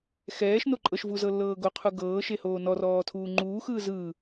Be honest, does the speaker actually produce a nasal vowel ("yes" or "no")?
no